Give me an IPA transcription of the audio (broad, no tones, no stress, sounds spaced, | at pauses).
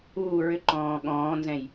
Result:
uː ɹ ʏ ǃ ɔ̃ː ɠ ɔ̃ː n z ɛ̃ j